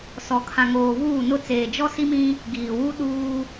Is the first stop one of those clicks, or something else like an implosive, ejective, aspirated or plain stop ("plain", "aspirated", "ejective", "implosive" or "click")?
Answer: aspirated